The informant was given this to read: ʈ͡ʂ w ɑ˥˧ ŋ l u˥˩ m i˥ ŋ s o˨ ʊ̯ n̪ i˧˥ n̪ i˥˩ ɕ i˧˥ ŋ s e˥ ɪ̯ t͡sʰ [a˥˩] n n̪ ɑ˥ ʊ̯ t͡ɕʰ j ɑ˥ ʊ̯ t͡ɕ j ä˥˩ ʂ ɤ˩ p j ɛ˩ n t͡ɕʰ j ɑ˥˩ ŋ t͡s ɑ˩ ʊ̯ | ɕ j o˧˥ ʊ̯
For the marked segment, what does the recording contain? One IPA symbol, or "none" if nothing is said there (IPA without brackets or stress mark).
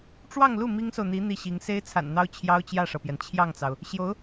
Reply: a̰˨˩